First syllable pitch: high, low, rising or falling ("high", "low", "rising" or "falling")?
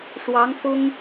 rising